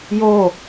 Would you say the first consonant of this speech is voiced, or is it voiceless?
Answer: voiced